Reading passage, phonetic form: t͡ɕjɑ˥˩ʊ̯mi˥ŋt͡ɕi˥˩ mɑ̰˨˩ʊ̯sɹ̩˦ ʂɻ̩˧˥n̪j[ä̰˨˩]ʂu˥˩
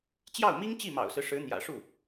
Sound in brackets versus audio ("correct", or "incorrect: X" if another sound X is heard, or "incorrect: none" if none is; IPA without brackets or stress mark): correct